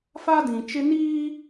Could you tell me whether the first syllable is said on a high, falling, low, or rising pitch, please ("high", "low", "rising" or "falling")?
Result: high